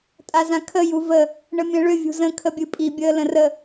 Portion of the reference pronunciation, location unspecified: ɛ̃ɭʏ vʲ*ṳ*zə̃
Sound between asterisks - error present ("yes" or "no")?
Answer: no